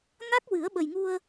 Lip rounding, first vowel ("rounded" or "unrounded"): unrounded